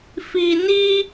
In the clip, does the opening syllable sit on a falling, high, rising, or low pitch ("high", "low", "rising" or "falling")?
low